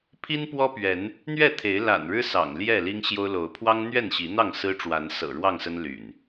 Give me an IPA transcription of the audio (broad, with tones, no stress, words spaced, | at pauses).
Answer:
pʰi˦npwɔ˦pɥɛ˨˦n | n̪ɥɛ˥˨t̪ʰe˨˦ɪ̯ la̰˨˩n ɻɻ̩˦ sɑ̰˨˩ŋljɛ˥˨ li˦ŋɕjo˦ʊ̯ lo˨˦ʊ̯ pʰwɑ˦ŋn̪ɥɛ˥˨nɕi˨˦n̪ɑ˥˨ŋ sɹ̩˦ʈ͡ʂwa˨˦n sɤ̰˨˩ɻwɑ˥˨ŋsə˦n ly̰˨˩n